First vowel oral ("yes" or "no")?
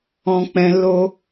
no